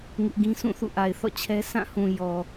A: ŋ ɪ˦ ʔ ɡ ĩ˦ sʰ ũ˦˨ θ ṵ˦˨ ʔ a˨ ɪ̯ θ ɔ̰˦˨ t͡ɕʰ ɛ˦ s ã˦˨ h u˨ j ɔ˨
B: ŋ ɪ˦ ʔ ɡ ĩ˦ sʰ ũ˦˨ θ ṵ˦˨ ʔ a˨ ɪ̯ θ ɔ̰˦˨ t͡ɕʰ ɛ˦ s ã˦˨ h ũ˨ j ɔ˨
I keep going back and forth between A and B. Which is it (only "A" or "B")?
B